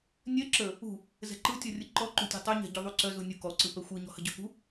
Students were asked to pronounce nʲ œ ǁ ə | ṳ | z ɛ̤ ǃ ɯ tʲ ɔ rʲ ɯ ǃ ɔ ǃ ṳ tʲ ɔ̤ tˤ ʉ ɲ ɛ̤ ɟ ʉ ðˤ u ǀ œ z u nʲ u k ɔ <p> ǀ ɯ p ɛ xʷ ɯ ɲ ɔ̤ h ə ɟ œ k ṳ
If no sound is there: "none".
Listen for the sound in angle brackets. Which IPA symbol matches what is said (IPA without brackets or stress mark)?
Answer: none